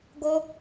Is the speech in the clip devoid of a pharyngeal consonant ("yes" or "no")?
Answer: yes